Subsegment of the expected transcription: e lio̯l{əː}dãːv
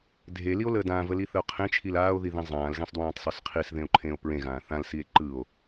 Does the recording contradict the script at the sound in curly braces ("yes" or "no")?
no